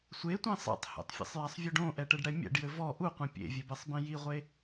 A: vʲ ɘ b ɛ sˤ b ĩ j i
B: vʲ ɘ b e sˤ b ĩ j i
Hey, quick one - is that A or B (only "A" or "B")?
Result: A